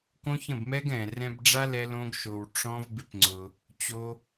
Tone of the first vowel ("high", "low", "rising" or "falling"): high